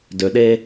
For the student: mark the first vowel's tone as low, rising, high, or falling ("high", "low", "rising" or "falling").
low